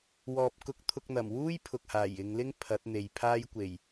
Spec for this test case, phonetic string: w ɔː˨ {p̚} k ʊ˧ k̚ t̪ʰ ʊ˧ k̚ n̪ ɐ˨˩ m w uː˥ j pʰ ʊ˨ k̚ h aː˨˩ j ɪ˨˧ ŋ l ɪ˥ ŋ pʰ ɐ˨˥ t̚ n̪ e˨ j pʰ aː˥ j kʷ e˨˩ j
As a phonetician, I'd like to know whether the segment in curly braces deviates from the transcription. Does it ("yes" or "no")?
no